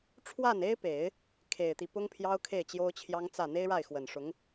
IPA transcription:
ʈ͡ʂʰ w a˥˩ n e˥ ɪ̯ p e˨˩˦ ɪ̯ | kʰ e˨˩ ɪ̯ t̪ i˦ p ʊ˥ ŋ pʰ j ɑ˥ ʊ̯ kʰ e˥˩ ɪ̯ t͡ɕ j o˥ ʊ̯ t͡ɕʰ j ɑ˥ ŋ t͡s ä˥˩ n̪ e˥ ɪ̯ ɻ a˥˩ ɪ̯ x w ə˨˩ n ʂ ʊ˧˥ ŋ

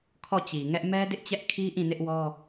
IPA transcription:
kʰ ɔ˦˨ t͡ɕ i˨ ŋ ɛ˦ ʔ m ɛ˦ d ɪ˦ ʔ t͡ɕ ɛ˦ ʔ kʰ i˦ ʔ ĩ˦˨ n ɪ˦ ʔ w ɔ˦

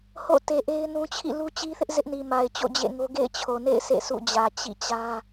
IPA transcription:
h o̰˦˨ t e˨ ʔ e˦ ɪ̯ n ũ˦ t͡ɕʰ ḭ˦˨ l u˦ t͡ɕ i˦ θ ɪ˦ ʔ z ɪ˦ ʔ n i˨ m a˨ ɪ̯ t͡ɕ o̰˦˨ d͡ʑ ḛ˦˨ ŋ o˦ ɡ ḛ˦˨ ɪ̯ t͡ɕʰ o˨ n ḛ˦˨ ɪ̯ sʰ ḛ˦˨ s ṵ˦˨ d͡ʑ ä˨ t͡ɕ ḭ˦˨ t͡ɕ ä˦

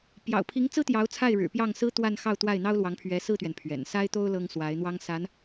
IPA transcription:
p j ɑ̰˨˩ ʊ̯ pʰ i˧˥ ŋ t͡s ɹ̩˥ t̪ j ɑ˧˥ ʊ̯ t͡sʰ a˥˩ ɪ̯ ɻ ɻ̩˨˩ p j ɑ˥˩ ŋ s ɹ̩˥ t̪ w a˥˧ n x ɑ˥˧ ʊ̯ t̪ w a˥˩ ɪ̯ n̪ ɑ˥ ʊ̯ l w ɑ˧˥ ŋ pʰ ɥ ɛ˧˥ s ɹ̩˥˩ t̪ ɥ ɛ˩ n pʰ ɥ ɛ̰˨˩ n s a˥ ɪ̯ t̪ o˥ ʊ̯ l ɤ˥ ŋ s w a˧˥ ɪ̯ n̪ w ɑ˥ ŋ s a˧˥ n

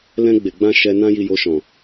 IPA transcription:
l ɛ̃˧ ɡ͡b e˨ ɡ͡b ã˧ ʃ ɛ˧ n ã˦ j i˧ j o˧ ʃ ɔ̃˨

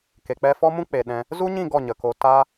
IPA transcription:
k e˨ k͡p ɛ˧ f ɔ˦ m ũ˦ k͡p e˨ ɗ ɛ̃˧ | z u˦ ɲ ĩ˦˨ ɡ ɔ˦˨ ɲ ə˨ k o˧ t a˦

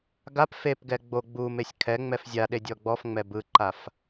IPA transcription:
ɡ a p f e p ɡ ɛ ɡ͡b o ɡ͡b u m e sʲ kʰ ɛ ŋ͡m ɛ f zʲ a ɗ e dʲ ɔ ɡ͡b ɔ f ŋ͡m ɛ b ɯ ǃ a f

